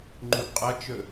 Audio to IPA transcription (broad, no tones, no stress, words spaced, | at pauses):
ŋ͡ǃuɡqʼɐt͡ʃɵ